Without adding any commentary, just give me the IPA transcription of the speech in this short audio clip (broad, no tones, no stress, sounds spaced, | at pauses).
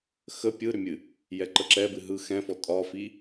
x ə pʲ ɯ ɾ ʏ mʲ ɨ | j ɛ ǃ ə ǁ ɛ b ɨ ɦ ɯ x ɛ̃ f ɔ tʼ ɒ f i